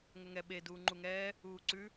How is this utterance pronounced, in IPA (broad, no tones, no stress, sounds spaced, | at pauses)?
ŋ ʏ ŋ ɛ ɓ e d uː ŋ͡ǃ u ŋ ɛː | uː ǀ ʉ